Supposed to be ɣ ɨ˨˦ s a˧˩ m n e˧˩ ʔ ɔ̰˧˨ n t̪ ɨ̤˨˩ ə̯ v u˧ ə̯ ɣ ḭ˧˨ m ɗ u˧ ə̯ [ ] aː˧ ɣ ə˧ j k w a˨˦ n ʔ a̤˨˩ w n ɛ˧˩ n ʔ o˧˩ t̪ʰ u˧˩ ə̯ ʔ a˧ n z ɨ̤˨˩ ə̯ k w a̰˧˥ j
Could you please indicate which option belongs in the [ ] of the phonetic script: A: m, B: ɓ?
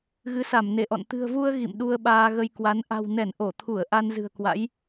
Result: B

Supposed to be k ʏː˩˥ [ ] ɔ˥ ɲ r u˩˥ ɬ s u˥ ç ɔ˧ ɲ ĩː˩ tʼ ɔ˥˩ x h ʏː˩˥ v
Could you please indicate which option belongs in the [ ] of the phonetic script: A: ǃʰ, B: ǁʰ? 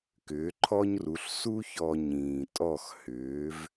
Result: A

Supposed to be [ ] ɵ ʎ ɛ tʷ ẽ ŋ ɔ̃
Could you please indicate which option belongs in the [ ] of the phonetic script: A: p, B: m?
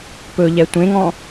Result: A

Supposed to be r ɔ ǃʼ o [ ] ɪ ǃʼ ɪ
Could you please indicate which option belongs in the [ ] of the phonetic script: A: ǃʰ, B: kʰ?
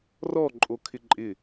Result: B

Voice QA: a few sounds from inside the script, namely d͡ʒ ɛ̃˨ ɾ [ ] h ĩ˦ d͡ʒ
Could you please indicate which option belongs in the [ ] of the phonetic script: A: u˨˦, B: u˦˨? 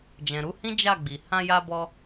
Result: A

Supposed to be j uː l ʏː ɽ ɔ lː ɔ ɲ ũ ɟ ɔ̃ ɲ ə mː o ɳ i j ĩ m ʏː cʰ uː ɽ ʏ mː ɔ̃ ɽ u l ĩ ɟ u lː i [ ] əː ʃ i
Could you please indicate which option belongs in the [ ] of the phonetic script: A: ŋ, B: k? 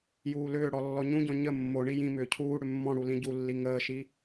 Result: A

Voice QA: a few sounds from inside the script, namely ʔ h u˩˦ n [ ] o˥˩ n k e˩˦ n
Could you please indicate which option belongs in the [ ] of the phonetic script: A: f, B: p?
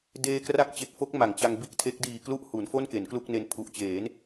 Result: A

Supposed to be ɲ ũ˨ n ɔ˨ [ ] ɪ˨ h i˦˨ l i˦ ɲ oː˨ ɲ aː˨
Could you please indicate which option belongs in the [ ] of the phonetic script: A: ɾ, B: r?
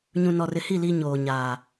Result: B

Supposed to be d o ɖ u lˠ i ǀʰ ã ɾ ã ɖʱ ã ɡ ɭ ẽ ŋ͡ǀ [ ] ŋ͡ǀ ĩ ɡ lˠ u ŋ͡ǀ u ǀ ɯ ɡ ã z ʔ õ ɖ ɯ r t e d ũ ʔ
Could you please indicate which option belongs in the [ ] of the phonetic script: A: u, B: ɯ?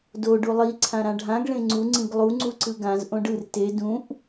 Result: A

